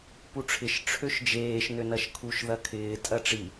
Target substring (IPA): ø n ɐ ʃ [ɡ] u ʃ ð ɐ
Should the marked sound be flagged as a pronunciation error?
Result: yes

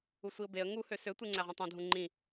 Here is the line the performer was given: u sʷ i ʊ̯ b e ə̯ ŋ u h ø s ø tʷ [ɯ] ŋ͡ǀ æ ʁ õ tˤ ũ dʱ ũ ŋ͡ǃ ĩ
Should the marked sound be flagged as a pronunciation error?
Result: no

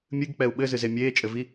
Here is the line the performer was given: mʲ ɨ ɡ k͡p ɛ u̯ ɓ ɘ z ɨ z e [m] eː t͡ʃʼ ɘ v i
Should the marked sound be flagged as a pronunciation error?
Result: yes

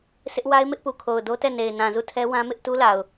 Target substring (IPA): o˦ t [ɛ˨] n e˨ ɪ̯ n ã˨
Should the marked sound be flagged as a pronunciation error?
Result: yes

